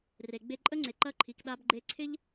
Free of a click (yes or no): no